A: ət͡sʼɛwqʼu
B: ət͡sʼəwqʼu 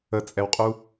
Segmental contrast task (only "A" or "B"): A